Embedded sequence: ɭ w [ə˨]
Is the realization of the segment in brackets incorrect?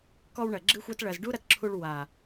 yes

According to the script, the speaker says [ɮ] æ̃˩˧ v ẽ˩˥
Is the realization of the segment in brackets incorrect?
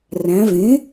yes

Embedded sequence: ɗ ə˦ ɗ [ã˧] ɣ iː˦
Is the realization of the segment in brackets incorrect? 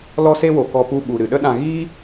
no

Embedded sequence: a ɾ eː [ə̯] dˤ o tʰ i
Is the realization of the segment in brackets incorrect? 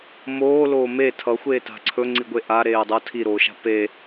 no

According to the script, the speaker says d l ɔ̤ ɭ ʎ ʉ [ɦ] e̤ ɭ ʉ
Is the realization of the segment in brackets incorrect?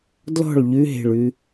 no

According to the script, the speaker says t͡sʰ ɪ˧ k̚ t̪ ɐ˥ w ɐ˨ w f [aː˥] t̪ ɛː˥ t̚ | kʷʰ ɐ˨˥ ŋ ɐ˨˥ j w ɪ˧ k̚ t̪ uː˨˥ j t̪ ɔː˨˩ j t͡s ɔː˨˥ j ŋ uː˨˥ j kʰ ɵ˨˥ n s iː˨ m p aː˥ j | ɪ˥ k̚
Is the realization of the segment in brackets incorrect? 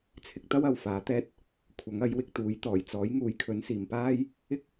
yes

